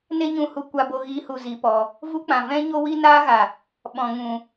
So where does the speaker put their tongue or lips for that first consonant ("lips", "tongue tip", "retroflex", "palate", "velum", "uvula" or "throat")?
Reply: tongue tip